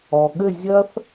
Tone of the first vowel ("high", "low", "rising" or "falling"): low